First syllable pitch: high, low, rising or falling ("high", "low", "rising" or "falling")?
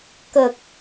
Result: low